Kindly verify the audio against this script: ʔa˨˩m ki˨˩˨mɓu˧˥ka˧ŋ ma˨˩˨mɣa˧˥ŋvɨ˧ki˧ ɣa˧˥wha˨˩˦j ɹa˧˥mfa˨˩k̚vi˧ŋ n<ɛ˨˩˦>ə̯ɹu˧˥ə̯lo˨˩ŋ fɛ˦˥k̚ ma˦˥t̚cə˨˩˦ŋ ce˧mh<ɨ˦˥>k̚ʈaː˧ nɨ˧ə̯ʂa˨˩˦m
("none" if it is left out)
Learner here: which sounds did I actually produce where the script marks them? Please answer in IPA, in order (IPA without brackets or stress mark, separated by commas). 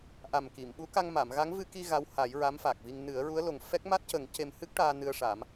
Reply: ɨ˨˩˦, ɨ˦˥